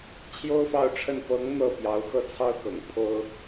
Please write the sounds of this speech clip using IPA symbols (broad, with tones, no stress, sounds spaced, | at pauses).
t͡ɕʰ j o˥ ʊ̯ f ɑ˥˧ ʊ̯ ʈ͡ʂʰ ə˥˩ n p ɤ˧˥ ŋ n̪ ɤ˥˩ p j ɑ˧˥ ʊ̯ x ɤ˥˩ t͡sʰ ɑ˥ ʊ̯ k ɤ̰˨˩ ŋ pʰ o˥ ʊ̯